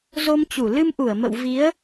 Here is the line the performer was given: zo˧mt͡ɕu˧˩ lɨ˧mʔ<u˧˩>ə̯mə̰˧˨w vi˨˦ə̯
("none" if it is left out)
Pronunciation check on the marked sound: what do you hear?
u˧˩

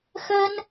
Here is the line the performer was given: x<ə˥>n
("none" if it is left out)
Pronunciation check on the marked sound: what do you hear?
ə˥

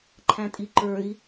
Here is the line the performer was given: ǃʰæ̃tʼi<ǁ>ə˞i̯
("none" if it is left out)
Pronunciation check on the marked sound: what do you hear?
ǃ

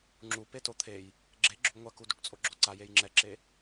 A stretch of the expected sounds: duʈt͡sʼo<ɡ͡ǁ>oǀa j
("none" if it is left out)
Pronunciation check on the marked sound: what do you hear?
ɡ͡ǁ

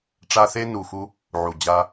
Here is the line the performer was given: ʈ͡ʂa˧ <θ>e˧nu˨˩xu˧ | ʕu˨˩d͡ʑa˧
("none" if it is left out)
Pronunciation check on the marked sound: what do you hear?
θ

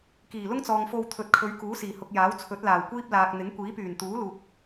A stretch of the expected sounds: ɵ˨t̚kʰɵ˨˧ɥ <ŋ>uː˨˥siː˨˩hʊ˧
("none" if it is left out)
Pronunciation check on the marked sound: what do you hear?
k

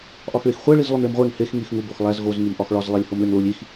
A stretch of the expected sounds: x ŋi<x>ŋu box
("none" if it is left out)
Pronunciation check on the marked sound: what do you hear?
x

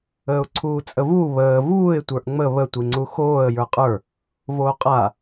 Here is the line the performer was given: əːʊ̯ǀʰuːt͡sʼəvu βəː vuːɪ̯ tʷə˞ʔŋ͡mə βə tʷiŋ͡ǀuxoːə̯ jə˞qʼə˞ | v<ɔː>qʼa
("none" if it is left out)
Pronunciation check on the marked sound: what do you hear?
oː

